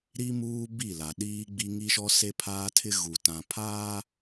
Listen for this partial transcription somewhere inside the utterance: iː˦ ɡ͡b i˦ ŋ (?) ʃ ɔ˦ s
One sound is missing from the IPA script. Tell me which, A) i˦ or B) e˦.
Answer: A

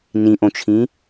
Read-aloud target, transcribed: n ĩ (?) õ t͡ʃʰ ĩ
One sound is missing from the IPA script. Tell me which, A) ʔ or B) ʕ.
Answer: A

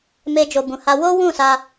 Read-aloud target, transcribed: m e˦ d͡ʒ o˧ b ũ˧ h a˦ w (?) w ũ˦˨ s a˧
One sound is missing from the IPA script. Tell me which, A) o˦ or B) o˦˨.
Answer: A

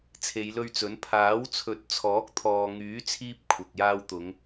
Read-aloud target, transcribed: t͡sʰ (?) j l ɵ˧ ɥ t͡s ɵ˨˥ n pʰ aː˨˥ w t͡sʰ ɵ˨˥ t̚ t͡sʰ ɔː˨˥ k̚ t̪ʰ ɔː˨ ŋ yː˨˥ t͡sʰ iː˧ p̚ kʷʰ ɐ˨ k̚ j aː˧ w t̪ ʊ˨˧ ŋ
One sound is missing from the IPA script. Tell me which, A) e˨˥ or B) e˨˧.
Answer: B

